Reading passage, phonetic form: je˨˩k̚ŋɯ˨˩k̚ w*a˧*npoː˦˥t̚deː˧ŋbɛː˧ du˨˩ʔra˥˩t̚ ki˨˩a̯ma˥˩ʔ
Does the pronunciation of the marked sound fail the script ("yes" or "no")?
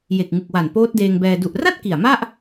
yes